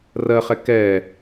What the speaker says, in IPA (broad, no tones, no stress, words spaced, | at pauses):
rɜχɛ kɛ